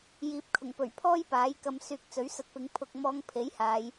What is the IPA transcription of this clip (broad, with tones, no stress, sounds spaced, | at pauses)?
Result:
j iː˨ p̚ kʰ ʊ˨˩ ŋ p ɵ˨˩ ɥ pʰ ɔː˥ j p aː˨˥ j k ɐ˧ m s yː˧ k̚ t͡s ɵ˨˥ ɥ s ɐ˧ t̚ p ɪ˨˥ ŋ pʰ ʊ˧ k̚ m ɔː˧ ŋ pʰ e˨˥ j h aː˨˧ j